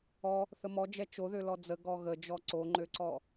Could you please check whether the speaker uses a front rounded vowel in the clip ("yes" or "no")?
yes